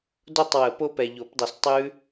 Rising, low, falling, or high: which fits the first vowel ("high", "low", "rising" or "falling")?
falling